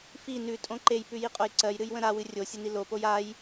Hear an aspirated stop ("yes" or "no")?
no